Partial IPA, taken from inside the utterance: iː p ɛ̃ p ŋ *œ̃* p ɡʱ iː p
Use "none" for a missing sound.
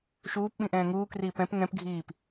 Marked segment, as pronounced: ɛ̃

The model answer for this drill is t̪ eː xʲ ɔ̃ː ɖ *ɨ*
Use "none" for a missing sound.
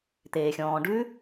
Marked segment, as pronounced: ʉ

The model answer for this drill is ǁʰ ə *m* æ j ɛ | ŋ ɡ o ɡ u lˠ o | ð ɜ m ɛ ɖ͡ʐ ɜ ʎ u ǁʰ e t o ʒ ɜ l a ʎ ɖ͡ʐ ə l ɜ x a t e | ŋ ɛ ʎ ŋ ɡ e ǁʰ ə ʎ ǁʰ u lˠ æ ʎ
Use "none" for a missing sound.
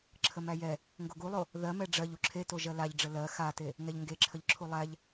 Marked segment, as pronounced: m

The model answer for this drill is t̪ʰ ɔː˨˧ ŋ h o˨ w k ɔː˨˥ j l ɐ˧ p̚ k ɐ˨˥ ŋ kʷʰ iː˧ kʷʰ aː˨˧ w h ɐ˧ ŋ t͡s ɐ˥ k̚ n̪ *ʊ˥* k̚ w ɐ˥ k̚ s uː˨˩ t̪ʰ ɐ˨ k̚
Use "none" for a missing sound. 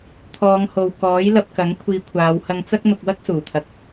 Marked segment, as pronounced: ʊ˧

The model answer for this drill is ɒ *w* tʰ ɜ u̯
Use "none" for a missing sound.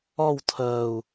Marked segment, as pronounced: w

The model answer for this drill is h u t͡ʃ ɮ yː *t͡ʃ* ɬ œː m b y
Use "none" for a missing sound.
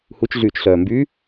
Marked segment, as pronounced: t͡ʃ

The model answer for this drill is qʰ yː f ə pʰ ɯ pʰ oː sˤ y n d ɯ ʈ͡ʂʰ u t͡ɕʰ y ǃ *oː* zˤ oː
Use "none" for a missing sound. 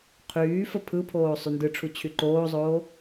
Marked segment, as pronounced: oː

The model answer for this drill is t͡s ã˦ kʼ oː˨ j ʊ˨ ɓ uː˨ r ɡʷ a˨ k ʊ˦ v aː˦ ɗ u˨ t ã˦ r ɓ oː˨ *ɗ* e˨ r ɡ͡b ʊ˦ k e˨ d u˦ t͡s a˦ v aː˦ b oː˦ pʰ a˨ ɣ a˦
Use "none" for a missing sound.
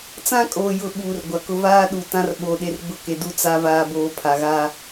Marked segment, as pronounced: ɗ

